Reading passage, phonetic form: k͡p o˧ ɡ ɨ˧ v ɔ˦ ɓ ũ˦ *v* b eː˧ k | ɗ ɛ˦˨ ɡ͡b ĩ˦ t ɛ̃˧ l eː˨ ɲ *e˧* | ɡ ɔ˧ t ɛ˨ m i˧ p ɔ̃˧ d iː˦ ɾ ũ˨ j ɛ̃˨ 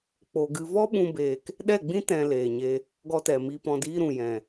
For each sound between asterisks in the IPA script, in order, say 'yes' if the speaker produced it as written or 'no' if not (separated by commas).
no, yes